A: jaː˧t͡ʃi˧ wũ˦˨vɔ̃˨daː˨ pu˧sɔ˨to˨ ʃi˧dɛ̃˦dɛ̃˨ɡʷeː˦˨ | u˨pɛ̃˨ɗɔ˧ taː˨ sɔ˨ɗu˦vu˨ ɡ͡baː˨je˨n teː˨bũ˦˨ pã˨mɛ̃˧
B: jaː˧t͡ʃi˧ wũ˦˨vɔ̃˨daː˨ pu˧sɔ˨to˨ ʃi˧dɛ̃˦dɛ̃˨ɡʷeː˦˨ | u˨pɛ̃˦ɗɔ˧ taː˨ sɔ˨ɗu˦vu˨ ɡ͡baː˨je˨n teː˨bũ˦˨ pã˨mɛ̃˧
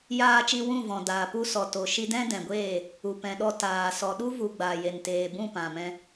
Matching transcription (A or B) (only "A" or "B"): A